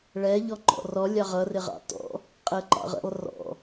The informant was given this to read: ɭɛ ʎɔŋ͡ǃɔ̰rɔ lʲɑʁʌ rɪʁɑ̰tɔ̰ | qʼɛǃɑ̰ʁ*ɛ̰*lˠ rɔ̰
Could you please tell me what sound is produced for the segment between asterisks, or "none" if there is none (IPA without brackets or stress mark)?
ə̰